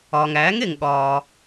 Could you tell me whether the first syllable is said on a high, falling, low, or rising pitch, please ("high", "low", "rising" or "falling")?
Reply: low